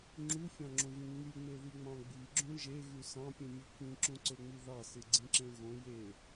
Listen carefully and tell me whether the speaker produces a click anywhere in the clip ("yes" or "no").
yes